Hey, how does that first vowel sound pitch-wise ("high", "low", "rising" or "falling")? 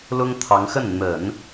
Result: high